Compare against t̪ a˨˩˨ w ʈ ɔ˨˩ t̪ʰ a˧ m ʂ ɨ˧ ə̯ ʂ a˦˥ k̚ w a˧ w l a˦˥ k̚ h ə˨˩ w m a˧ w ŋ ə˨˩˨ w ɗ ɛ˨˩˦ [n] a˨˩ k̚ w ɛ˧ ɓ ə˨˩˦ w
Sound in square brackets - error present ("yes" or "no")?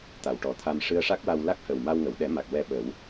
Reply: yes